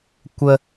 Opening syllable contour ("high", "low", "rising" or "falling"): high